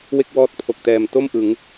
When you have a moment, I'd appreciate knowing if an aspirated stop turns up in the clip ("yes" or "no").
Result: yes